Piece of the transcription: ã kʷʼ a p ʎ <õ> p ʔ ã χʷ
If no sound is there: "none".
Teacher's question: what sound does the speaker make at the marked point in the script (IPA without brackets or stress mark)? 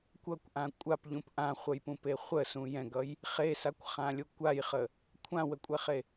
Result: ũ